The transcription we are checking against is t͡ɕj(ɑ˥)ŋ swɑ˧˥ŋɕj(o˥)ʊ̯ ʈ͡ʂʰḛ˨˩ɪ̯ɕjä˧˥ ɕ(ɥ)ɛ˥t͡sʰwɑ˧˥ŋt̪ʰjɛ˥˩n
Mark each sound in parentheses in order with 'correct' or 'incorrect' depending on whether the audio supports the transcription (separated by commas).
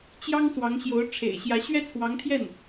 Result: correct, incorrect, correct